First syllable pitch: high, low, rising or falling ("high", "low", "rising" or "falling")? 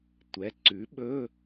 rising